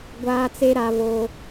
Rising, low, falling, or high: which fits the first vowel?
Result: high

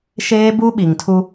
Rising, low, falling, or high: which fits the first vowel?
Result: high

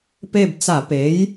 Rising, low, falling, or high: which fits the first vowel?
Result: falling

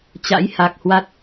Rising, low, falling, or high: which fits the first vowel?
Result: rising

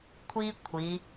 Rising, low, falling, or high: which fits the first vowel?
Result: high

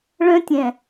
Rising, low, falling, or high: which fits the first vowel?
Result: high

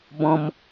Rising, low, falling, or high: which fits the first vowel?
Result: high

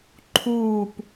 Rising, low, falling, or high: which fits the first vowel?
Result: falling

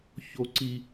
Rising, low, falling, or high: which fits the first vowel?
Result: high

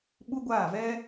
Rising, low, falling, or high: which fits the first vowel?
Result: high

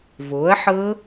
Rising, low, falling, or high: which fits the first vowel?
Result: rising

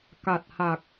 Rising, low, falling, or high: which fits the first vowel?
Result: low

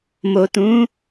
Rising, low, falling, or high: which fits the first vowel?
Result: low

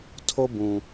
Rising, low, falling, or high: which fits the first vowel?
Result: high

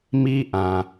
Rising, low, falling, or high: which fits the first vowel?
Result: high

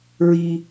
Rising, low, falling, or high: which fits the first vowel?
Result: high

